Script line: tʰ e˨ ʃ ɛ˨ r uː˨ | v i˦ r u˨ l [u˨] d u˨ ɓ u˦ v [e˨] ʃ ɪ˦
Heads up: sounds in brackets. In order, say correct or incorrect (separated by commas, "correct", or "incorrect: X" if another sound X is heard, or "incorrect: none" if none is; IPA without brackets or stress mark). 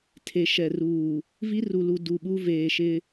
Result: correct, incorrect: eː˨